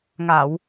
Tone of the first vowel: low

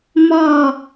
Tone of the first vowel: falling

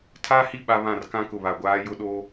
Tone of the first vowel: high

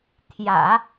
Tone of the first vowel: low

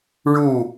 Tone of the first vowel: falling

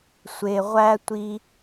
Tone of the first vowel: low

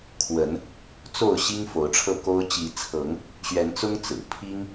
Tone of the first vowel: rising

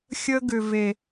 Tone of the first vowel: high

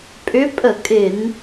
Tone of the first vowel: rising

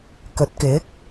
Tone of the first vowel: rising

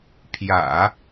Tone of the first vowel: low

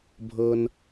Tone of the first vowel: high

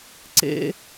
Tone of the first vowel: high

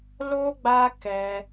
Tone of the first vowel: high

